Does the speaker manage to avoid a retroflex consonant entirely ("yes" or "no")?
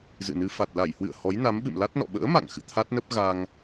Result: yes